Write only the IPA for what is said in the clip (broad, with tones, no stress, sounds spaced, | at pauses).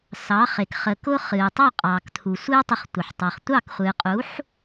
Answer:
s ɑ˩˥ χ e˩ k χ ə˩ k ʊ˧ χ ɨː˩ tˤ ɑ˥˩ qʼ ɑː˩ k t̪ʰ u˩ sʷ ɨː˥ tˤ ə˧ χ tʷ ə˩ ħ tˤ ɑ˩ χ tʷ ɑ˥˩ k χʷ ɨː˩ qʼ u˩˥ ħ